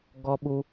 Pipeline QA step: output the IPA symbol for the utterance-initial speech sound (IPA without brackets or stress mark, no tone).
ɡ